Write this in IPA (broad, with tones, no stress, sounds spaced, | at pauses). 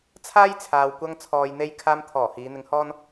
t͡sʰ aː˥ j t͡sʰ aː˨ w kʷ ɐ˧ ŋ t͡sʰ ɔː˨ j n̪ e˧ j kʰ aː˧ m t̪ʰ ɔː˨˩ h iː˨˧ n̪ ɪ˧ ŋ h ɔː˥ n